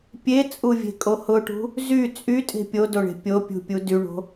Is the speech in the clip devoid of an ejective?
no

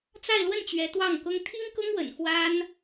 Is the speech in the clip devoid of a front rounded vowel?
yes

